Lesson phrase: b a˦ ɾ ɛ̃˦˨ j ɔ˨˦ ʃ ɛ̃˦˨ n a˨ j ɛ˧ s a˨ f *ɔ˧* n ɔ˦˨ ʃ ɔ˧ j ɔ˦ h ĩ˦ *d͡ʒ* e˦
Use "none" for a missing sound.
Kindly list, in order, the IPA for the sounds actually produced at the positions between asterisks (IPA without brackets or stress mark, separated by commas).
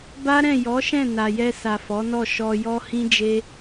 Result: ɔ˨˦, d͡ʒ